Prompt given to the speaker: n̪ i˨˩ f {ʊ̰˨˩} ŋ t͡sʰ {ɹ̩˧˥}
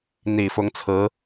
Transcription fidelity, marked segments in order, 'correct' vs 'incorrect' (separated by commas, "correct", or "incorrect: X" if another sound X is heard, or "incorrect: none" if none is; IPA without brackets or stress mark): incorrect: ʊ˧˥, correct